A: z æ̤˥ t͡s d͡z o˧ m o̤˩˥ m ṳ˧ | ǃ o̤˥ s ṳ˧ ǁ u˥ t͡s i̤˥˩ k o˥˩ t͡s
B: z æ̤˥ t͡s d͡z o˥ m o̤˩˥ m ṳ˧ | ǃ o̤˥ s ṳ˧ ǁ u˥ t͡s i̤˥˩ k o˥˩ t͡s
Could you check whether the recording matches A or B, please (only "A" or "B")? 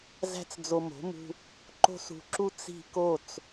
A